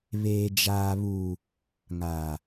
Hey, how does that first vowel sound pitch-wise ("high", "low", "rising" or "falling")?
low